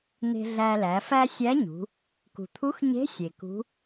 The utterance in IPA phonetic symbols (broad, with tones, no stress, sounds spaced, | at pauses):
n̪ e̤˧ ɮ æ˧ l æ˩˧ f æ˥ sʲ æ˧˥ ɲ ṳ˩˧ | k ṳ˩ t̪ʰ u˧˥ x ɲ e̤˧˥ sʲ e˩ k ṳ˧˥